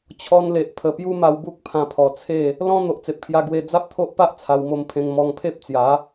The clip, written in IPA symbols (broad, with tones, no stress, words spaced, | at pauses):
t͡ɕʰɔ˧nle˨ʔ pʰə˨˩pju˦ma˧w bu˦k̚pʰã˧pʰɔ˨˩t͡sʰe˥˧ | lɔ̃˦ n̪o˨ʔt͡se˨p̚kʰja˧ ɡwe˧ d͡za˦p̚t̪ʰo˦ʔpa˦ʔ t͡sʰa˧wmo˧mpʰẽ˧ŋ mɔ˧ŋpʰe˦p̚t͡sja˨˦